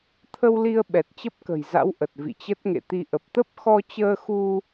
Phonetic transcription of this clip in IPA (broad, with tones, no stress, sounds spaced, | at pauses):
t̪ʰ ə˧ w l i˧ ə̯ ɓ ɛ˨˩ t̚ t͡ɕ ə˦˥ p̚ k ə̤˨˩ j z a̰˧˥ w ʔ ə˨˩ t̚ v ḭ˧˨ t͡ɕ ə˦˥ t̚ ŋ ḛ˧˨ t̪ i˧ ʔ ə˨˩ p̚ t̪ ə˦˥ p̚ x ɔ˧ t͡ɕ əː˧ x u˧